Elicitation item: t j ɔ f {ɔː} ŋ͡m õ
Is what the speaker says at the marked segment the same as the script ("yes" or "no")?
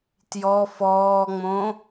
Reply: yes